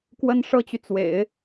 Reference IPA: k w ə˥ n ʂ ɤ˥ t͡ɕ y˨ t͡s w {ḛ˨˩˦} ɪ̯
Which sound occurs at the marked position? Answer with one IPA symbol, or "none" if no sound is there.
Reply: ḛ˨˩˦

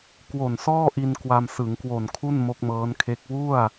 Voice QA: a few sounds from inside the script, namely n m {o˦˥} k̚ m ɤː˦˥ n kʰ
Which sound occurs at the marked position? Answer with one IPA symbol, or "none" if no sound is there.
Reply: o˦˥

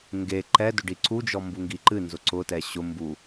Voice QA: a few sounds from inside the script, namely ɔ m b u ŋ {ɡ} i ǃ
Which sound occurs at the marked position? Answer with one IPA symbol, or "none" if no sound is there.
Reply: ɡ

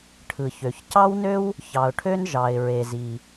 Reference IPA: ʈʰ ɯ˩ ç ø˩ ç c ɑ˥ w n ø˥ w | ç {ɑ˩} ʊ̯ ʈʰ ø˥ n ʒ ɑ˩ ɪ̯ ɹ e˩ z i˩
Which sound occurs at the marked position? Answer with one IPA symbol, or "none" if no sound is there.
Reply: ɑ˩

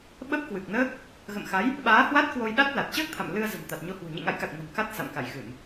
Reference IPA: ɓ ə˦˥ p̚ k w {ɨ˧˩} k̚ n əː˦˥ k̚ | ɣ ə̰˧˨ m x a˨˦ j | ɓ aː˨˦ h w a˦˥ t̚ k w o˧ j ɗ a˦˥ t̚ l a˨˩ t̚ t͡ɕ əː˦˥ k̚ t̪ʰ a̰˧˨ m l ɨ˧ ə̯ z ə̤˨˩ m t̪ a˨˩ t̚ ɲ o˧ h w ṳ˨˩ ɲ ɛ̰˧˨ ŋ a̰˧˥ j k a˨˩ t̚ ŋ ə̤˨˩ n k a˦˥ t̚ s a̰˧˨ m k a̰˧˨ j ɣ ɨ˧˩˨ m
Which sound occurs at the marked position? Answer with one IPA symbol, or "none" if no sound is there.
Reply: ɨ˨˩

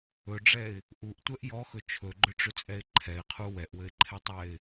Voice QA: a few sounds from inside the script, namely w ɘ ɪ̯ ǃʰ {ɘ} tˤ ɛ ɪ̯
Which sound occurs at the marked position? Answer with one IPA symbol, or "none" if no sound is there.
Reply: ɛ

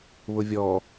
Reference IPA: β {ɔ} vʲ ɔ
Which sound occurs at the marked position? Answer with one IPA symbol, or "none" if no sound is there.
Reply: ʊ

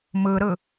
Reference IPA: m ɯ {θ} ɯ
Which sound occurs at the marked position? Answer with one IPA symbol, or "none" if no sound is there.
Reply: ɾ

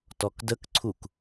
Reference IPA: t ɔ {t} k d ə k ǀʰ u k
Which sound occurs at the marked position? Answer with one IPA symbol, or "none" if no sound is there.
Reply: none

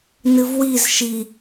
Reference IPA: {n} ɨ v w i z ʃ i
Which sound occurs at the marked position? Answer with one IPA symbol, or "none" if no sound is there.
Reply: n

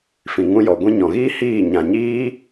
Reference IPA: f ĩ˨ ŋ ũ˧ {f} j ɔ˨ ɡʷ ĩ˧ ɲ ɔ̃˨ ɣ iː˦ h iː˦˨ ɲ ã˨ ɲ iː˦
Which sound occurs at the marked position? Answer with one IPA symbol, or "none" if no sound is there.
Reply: none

